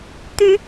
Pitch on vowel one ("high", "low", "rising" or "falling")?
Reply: rising